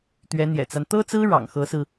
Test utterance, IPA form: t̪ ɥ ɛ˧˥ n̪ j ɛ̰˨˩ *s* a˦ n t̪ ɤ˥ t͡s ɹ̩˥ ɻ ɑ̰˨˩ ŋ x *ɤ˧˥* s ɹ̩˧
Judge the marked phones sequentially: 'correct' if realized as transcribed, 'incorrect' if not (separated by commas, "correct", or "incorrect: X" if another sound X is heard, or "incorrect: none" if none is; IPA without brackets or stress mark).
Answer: incorrect: t͡s, correct